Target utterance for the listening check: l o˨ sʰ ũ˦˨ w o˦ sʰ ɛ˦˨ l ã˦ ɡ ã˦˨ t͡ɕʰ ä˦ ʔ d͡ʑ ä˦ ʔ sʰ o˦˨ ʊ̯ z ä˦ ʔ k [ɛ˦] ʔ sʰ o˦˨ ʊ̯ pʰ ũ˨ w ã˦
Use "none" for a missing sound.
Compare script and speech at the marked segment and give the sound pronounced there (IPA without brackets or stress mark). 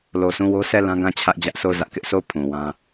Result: ɪ˦